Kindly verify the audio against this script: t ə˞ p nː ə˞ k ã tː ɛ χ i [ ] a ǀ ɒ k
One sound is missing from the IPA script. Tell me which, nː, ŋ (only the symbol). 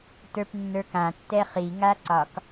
ŋ